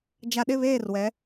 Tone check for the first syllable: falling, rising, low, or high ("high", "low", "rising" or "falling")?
low